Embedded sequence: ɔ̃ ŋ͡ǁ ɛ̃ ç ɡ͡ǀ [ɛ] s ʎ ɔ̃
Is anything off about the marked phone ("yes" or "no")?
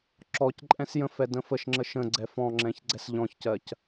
no